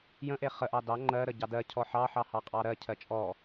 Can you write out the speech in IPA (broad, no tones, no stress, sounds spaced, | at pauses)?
j ə̃ ʔ e χ ə ʔ ɑ d ɑ ŋ͡ǃ ɜ ɾ ə ɟ ɑ d ɜ cʰ ɔ ħ ɑ ħ ɑ h ɑ qʼ ɑ ɾ ɜ cʰ ɜ t͡ʃʼ ɔ